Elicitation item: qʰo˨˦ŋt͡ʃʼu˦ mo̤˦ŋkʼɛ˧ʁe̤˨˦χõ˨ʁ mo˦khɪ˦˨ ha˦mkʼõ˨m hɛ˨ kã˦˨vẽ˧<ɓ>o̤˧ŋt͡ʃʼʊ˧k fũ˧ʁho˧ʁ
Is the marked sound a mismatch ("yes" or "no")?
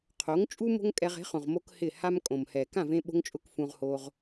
no